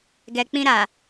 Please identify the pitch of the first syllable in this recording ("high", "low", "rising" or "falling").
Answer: low